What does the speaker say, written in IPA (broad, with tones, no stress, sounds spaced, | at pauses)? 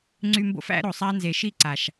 ŋ͡ǀ y˧ m b o̰˦ f æ̰˦ ɾ o˨ sˤ a˦ n z e˨ ʃ i˦˨ ǀ a˨ ʃ